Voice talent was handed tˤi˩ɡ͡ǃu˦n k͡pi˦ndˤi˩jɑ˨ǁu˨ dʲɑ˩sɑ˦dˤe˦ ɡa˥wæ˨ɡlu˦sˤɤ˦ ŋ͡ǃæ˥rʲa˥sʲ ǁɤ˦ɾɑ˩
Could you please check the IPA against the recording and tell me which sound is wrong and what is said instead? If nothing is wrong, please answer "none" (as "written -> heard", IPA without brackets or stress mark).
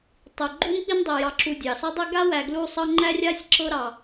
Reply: none